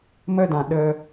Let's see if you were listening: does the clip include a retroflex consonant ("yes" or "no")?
no